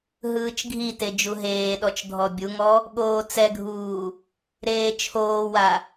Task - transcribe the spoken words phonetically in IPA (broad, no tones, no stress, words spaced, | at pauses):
ɦɯːt͡ʃɡʱite d͡ʒuɦeːɗɔt͡ʃ dʱɔbʲuŋɔ | ɠoːt͡sɛɡʱuː | ɾeːt͡ʃʰoːwa